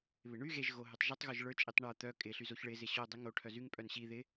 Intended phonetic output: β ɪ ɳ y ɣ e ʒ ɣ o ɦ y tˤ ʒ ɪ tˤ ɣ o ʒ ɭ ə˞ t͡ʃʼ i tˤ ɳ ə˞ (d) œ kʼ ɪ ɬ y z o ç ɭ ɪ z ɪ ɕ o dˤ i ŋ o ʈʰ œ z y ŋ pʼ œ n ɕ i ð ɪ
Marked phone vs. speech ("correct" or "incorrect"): incorrect